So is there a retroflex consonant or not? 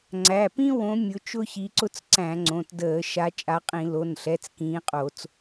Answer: no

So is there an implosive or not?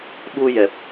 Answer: yes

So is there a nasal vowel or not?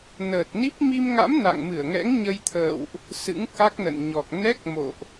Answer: no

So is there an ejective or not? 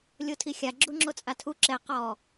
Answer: yes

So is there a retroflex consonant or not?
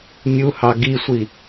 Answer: no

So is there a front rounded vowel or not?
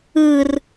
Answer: no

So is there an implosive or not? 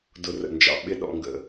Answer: yes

